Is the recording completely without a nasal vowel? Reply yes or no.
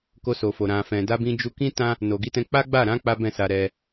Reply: no